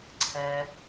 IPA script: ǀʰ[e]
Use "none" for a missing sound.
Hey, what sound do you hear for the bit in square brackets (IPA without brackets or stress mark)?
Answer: ɛ